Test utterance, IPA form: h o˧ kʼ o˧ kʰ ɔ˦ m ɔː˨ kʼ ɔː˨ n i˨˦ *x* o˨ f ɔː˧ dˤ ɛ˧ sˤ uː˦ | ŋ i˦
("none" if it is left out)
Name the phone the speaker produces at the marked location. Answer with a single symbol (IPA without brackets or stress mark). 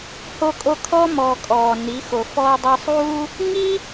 x